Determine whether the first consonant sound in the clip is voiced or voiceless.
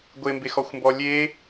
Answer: voiced